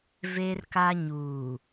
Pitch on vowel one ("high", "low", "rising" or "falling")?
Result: high